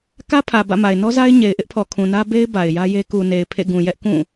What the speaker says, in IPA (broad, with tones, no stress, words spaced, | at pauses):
kä˦pʰä˨ bä̰˦˨ma˨ɪ̯ nɔ˦za˦ɪ̯ ɲe˨ɪ̯ʔɪ˦ʔpʰɔ˨kʰũ˨ nä˦ be˦ɪ̯ ba˨ɪ̯jä˦je˦ ku˨ne˨ɪ̯ pʰḛ˦˨ɡũ˨jɛ˦ʔ kũ˦˨